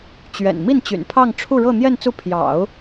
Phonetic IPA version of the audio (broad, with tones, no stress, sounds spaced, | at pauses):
t͡ɕ ɥ ɛ̰˨˩ n m i˥˩ n t͡ɕ y̰˨˩ n pʰ ɑ˥˧ ŋ ʈ͡ʂʰ u˥˧ ɻ ɤ˥˧ n̪ j ɛ˥˧ n t͡s u˥˩ pʰ j ɑ̰˨˩˦ ʊ̯